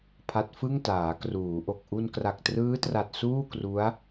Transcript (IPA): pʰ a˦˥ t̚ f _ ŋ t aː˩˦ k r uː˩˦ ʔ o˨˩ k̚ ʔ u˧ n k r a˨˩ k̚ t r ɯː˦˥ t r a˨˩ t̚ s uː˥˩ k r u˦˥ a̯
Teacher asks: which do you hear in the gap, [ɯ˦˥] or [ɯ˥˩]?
ɯ˥˩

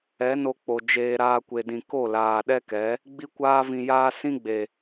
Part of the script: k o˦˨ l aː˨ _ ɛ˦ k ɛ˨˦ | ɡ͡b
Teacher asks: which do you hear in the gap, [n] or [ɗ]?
ɗ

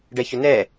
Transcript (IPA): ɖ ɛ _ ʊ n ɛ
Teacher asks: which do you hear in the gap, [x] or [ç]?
ç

